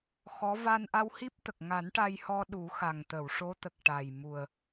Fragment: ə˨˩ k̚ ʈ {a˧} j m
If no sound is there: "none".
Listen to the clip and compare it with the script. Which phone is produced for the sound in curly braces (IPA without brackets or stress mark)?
a˨˩